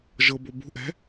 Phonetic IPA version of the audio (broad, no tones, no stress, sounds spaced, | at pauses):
ʒ ɤ b o b ṳ ʔ ɛ̤